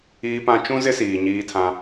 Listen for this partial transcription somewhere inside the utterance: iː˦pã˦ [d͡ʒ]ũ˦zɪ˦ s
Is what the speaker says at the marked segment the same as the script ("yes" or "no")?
no